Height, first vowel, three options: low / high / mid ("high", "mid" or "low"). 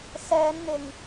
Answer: mid